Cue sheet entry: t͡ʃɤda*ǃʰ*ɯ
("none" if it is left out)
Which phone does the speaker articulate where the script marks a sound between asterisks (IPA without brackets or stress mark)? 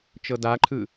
ǃʰ